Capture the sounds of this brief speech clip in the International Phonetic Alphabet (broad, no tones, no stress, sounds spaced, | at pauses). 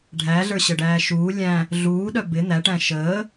ɖʱ æ ɮ ə˞ ɕ ə ɖ æː ʃ uː lʲ æ̃ | ɮ uː ɗ œ b ɪ n̪ æ ʈ æ̃ ʃ əː